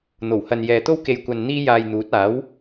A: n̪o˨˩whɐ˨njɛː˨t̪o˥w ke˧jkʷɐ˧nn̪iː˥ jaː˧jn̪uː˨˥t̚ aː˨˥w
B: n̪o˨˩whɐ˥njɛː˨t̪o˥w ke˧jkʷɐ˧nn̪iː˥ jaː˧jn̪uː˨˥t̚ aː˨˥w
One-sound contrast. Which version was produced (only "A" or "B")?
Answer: A